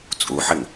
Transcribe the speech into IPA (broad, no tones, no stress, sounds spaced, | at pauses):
t͡sʼ u ħ ɪ ŋ